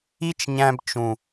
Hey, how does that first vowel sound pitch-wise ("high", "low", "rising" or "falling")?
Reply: high